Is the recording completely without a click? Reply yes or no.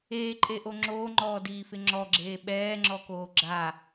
no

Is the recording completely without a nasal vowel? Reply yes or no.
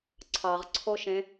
no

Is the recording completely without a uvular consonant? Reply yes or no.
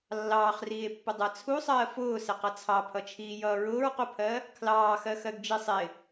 no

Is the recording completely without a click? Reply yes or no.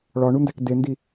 yes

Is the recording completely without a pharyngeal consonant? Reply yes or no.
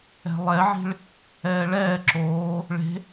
no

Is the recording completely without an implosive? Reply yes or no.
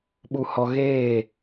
no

